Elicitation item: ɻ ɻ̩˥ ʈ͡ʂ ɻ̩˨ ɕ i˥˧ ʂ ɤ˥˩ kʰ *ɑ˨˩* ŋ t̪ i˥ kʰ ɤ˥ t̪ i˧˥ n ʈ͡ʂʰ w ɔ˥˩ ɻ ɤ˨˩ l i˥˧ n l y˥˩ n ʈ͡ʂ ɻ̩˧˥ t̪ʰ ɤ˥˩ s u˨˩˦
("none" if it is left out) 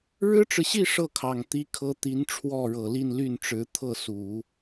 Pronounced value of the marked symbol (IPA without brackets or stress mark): ɑ˨˩